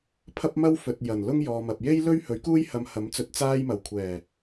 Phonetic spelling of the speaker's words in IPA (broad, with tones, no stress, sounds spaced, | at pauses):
pʰ ɐ˥ p̚ m ɐ˥ w f ɵ˨ t̚ j ɐ˨˩ n l ʊ˥ ŋ j ɔː˨ m ɐ˨ p̚ j e˥ j l ɵ˥ ɥ h ɵ˨˥ ɥ k uː˥ j h ɐ˧ m h ɐ˨˥ m t͡s ɵ˧ t̚ t͡s aː˥ j m ɐ˨˩ w kʷʰ ɛː˨˩